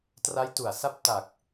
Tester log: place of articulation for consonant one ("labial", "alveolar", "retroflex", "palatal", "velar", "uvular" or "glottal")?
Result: alveolar